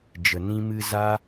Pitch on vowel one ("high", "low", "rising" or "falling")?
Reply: low